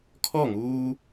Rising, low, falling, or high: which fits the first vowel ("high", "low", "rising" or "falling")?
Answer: falling